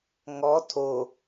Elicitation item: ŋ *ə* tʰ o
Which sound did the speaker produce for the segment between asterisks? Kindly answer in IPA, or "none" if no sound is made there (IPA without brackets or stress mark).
ɔ